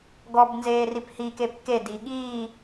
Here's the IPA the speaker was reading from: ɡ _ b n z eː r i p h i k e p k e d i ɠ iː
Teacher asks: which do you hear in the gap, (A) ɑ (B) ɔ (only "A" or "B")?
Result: B